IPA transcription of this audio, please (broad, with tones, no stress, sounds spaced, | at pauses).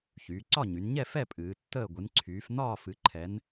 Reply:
ç yː˩˧ ǀ ɒ˥˨ ɲ y˩˧ n ɲ ɛ˥˨ f ɛ˥˨ pʼ ɨː˩˧ tː əː˥˨ ɡʷ ɨ˩˧ n ǀʰ yː˩˧ f n ɒː˥˨ f ɨ˩˧ ǃʰ ɛ˩˧ n